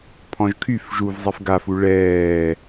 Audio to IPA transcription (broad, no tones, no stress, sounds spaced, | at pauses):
pʰ ɔ̃ ʒ kʰ y f ʒ u v zˤ i f ɡ a f u ɭ ɛː